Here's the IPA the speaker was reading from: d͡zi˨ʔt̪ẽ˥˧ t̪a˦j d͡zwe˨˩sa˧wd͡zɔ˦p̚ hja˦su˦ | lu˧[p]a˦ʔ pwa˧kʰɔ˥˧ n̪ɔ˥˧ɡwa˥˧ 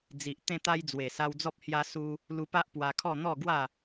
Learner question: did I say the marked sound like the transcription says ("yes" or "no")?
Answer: yes